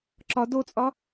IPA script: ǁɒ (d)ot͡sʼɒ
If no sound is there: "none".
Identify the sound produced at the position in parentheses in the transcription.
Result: d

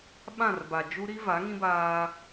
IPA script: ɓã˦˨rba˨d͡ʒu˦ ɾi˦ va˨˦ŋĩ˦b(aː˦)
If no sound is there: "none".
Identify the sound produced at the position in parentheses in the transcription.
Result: aː˦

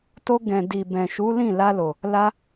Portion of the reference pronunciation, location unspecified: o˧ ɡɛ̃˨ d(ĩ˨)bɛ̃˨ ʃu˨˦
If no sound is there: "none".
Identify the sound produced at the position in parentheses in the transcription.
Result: i˨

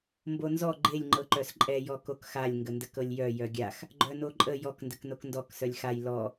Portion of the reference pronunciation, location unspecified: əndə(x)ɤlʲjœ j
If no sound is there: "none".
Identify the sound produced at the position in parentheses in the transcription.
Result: k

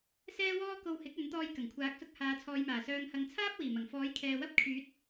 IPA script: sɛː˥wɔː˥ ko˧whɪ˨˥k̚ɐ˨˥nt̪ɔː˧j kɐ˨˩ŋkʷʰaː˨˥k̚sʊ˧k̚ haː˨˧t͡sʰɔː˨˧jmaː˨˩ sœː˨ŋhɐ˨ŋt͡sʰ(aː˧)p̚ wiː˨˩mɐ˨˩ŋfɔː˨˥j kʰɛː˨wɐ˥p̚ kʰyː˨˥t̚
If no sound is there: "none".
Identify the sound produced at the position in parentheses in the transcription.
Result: aː˥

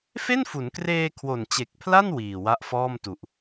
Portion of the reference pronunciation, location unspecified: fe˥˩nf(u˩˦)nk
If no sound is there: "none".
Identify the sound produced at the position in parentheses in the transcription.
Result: u˩˦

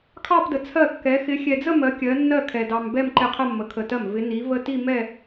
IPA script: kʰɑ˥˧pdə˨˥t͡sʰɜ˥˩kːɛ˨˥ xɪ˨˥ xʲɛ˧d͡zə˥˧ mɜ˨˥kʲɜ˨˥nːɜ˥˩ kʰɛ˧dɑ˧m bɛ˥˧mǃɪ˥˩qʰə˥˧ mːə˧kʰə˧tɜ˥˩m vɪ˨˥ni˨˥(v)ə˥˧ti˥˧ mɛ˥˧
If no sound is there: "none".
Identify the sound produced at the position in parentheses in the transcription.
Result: v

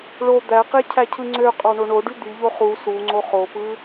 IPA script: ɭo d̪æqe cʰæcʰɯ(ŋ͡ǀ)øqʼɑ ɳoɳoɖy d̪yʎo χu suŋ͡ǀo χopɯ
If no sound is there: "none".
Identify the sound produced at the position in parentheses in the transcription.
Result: ŋ͡ǀ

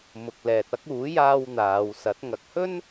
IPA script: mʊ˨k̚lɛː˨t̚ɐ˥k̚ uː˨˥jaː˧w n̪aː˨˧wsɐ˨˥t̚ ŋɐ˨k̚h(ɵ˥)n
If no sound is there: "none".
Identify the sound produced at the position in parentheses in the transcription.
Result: ɵ˥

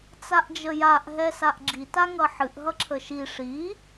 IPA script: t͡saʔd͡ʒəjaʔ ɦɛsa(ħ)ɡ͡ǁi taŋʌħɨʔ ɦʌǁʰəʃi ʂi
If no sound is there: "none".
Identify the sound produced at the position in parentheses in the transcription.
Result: ʔ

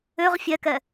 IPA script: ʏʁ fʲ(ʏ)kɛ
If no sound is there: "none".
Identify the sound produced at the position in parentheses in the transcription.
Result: ɛ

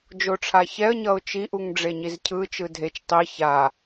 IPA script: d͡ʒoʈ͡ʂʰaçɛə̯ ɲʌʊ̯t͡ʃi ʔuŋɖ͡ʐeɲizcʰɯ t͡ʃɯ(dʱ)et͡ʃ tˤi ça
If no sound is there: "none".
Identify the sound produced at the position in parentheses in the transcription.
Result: dʱ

